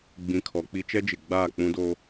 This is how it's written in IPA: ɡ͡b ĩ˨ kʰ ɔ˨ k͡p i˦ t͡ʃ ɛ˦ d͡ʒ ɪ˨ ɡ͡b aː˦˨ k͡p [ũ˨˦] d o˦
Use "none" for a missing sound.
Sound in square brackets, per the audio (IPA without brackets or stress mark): ũ˦